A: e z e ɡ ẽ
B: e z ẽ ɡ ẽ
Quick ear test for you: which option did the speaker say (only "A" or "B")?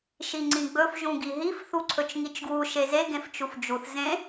A